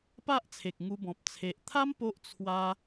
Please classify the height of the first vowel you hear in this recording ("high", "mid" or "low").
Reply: low